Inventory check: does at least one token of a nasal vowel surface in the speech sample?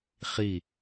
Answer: no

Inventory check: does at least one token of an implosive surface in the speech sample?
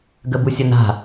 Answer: no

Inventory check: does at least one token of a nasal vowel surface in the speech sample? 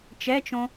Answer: yes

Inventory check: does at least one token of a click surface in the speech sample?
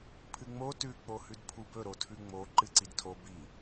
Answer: yes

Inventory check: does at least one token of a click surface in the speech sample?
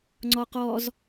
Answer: yes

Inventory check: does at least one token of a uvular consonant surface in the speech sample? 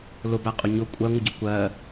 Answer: yes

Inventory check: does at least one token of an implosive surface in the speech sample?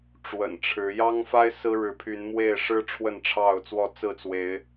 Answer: no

